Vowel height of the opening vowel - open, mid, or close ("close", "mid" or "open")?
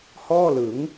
mid